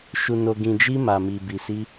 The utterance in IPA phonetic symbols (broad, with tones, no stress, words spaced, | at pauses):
ʃu˨no˨ɡĩ˨d͡ʒi˧ ma˨mi˨ bi˨si˧